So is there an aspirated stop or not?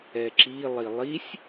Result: no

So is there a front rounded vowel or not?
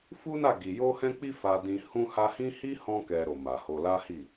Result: no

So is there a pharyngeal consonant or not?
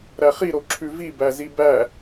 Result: no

